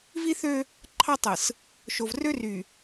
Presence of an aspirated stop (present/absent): present